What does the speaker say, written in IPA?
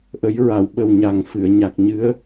ʔ ə˨˩˦ j ɹ a˨˩˨ w ɓ ə˨˩ w ɲ a˨˩ ŋ f ɨ˨˩˨ ə̯ ɲ a˨˩ k̚ ɲ ɨ˧˥ ə̯

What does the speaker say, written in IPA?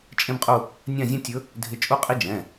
t͡ʃʼ ẽ˥ b qʼ u˥˧ | nʲ ã˥˧ zʲ ã˥ tʲ ɵ˧˥ | dʱ ɪ˧˥ t͡ʃʼ u˥ qʼ i˥ d͡ʒ ɛ̃˩˧˩

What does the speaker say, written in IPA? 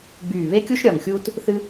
ɡ͡b yː˧˩ β e˥ kʲ u˥ ʃ ɾʲ ɒ˧˩ ŋ xʲ uː˥ t | θ ɨ˥

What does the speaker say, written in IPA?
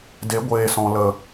d e˨˦ ɡʷ eː˨ s ɔ̃˨ l ə˨

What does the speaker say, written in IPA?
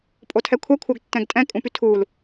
pʼ o tʰ ɛ kʷʰ ɛ kʷʰ œ ɡ tː ɛ̃ ɡ tʼ ɛ̃ kʼ ũ p y tʰ u l

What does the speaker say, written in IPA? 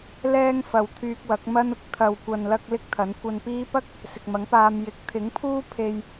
l ɛː˧ ŋ f ɐ˨ w t̪ʰ yː˧ k̚ w ɐ˨˥ k̚ m ɐ˥ n ʊ˧ k̚ t̪ʰ ɐ˨ w kʷ ɐ˨ n l ɐ˧ k̚ l ɪ˥ k̚ t̪ʰ ɐ˨˥ n kʷ ɐ˧ n p iː˥ p ɐ˥ k̚ | s ɪ˨ k̚ m ɐ˨˥ ŋ p aː˧ m j ɪ˨˥ k̚ t̪ʰ ɪ˨˥ ŋ pʰ uː˥ pʰ e˧ j

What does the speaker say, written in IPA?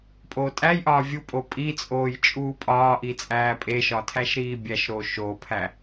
pʼ oː tʼ æ j ʔ ɒː vʲ u pʼ o pʼ i t͡sʼ oː j t͡ʃʼ uː pʼ ɒː ʔ i t͡sʼ æː pʼ e ʃ ɒ tʰ æ ʃ ɾ iː bʲ æ ʃ ɾ oː ʃ oː pʰ æ

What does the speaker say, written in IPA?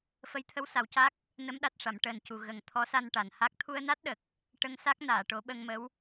f ə˧˥ j t̪ʰ ə˧˥ w s a˨˩˦ w c a˦˥ k̚ | n ə˧˥ m ɗ a˨˩ t̚ ʂ a˨˩˨ m ʈ əː˨˩ n c u˨˩˨ ɣ ə˨˩ ŋ t̪ʰ ɔ˧˥ s a˧ n ʈ a˨˩ n h a˦˥ k̚ t̪ʰ u˧ ə̯ n a˦˥ t̚ ɗ ə˨˩ k̚ | ʈ ə˧ ŋ s a˦˥ k̚ n aː˨˩˨ ʈ o˨˩˦ ɓ ə˧ ŋ m ə˧˥ w

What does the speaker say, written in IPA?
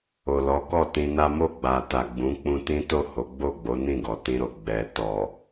o˨ l ɔ˨˦ k ɔ˦˨ t ĩ˧ n a˦ m o˦˨ ɡ͡b a˨ t a˨ ɡ͡b ũ˨˦ k͡p ũ˧ t ĩ˦ t o˦˨ h o˨˦ ɡ͡b o˦˨ ɡ͡b o˨˦ n ĩ˦˨ ɡ ɔ˨ t ĩ˧ ɾ o˨ ɡ͡b ɛ˨ t ɔ˨

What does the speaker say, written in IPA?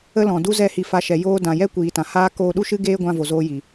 ə˦ l ɔ̃˨ d u˦ z ɛ˦˨ h i˧ f a˧ ʃ ɛ˨ j oː˧ d ã˨ j ɛ˦ kʷ iː˨ t ã˨ h aː˦ k oː˧ ɗ u˦ ʃ ɨ˦ ɡ eː˦ ɡʷ ã˧ v o˨ z oː˧ j i˨

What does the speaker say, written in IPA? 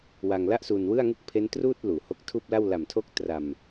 w a˧ ŋ l a˥˩ ʔ s uː˧ n w ɯ˥˩ a̯ ŋ u˥˩ k̚ pʰ e˦˥ n t r uː˥˩ t̚ l uː˨˩ h o˦˥ k̚ tʰ uː˥˩ p̚ l a˥˩ w l a˨˩ m tʰ o˦˥ k̚ t r a˨˩ m

